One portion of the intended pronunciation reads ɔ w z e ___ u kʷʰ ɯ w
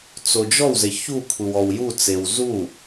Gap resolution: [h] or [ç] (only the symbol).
ç